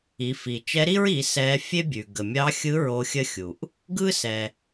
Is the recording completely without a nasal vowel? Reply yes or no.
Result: yes